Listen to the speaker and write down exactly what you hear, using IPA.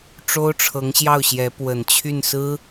ʈ͡ʂo˥ʊ̯ʈ͡ʂʰɤ˧˥ŋɕjɑ˥˩ʊ̯ɕjɛ˧˥ pwə˨˩nt͡ɕʰy˥˩nsɹ̩˥

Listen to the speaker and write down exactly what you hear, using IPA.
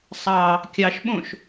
sˤɑ | kʲɑʃɓõʃ

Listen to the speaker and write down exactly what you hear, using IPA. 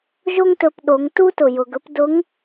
ʒo˥ŋtɵ˧pɗo˩˧ŋ tu˥tʊ˩ jʊ˩ɡɵ˧˥p dʊ˧˥ŋ

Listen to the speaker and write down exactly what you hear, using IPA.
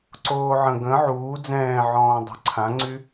ǀoːʕə̃ ɡə̃ ʕuː d͡zɛ̃ːʕɔ̃ː dˤo̤ǀʰãŋ͡ǀy

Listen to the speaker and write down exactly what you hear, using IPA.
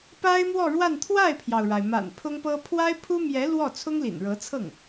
pa˥ɪ̯mwɔ˥˧ɻwa˥˧n t̪ʰwa˥˩ɪ̯pʰjɑ˩ʊ̯ɻa˩ɪ̯ ma̰˨˩npʰʊ˥ŋpɤ˥ pʰwa˥ɪ̯pʰu˥ mjɛ˧˥ lwɔ˥˩ t͡sʰʊ˥ŋlḭ˨˩nɻɤ˧˥t͡sʰɤ˥˩ŋ

